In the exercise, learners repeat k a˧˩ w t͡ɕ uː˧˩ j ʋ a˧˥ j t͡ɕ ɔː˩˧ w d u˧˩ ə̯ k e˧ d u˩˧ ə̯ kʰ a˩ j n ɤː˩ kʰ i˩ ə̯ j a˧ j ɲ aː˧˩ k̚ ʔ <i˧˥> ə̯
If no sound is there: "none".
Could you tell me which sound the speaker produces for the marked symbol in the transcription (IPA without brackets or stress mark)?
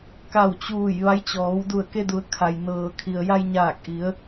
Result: i˩˧